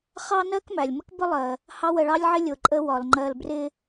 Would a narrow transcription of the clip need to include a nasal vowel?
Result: no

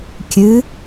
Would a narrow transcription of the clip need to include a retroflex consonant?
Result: no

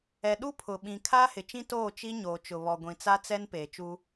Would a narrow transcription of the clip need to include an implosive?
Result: yes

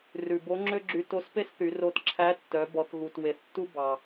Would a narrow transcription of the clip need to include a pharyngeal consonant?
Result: no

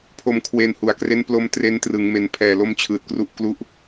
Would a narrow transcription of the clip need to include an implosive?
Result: no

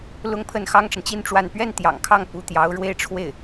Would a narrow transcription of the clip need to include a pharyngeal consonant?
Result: no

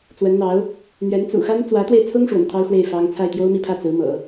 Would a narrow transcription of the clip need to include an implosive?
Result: no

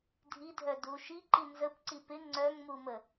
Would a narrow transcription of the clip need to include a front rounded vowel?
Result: yes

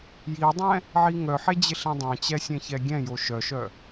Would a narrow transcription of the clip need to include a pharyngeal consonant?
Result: yes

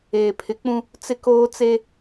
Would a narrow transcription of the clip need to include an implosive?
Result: no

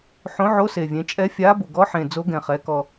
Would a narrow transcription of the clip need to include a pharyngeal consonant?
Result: yes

